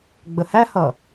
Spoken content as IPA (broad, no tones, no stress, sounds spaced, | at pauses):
ɡ͡b ə h æ h ʌ